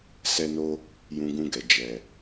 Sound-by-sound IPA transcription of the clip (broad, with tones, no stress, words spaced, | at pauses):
sɛ˧no˧ | jũ˧ɡũ˧ɡɛ˨ d͡ʒɛ˨